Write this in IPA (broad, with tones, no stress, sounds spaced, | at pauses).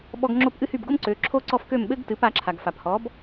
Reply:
ɓ ɔ˧ ɡ ŋ͡ǁ o˥˩ p ʔ ɨ˥ h y˥˩ b ɡ o˥ m ǀ ø˩˥ ǁʰ o˥ ǀ ɔ˥˩ f k ø˥˩ m ɓ ɘ˥ ɡ t ɨ˩˥ p a˩˥ ǁʰ a˩ ɡ f a˩ p h ɔ˩˥ b